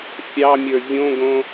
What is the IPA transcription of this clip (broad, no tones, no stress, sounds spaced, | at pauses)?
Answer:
fʲ ɑ mʲ ə˞ vʲ õ ɡ õ